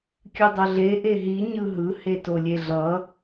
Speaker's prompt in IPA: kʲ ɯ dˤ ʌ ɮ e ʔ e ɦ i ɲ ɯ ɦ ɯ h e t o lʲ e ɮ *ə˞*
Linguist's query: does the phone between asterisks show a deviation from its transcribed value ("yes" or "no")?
yes